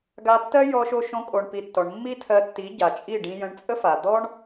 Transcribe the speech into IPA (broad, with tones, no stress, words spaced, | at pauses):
ɡa˧tːɜ˦ jɔ˧ʃo˧ʃõ˧ kʼo˨ɳpi˨ tːɔ˨ɳmːi˦tʰɜ˧tːi˨˦ ɟa˨t͡ʃʼi˦˨ ɖĩ˧jə̃˧ɳt͡sʼə˦fa˨ d̪ɔ˦ɳ